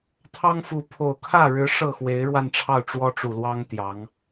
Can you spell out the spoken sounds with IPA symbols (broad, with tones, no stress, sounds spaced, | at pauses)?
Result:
t̪ʰ ɑ˥ ŋ f u˧˥ pʰ o˨˩ ʊ̯ kʰ ä˥˩ ɻ ɻ̩˧˥ ʂ ɤ˥˩ x w e˧˥ ɪ̯ ɻ w a˥˧ n ʈ͡ʂʰ ɑ˥˩ ʊ̯ ʈ͡ʂ w ɔ˥ ʈ͡ʂ u˨˩ l w ɑ˥ ŋ t̪ j ɑ˧˥ ŋ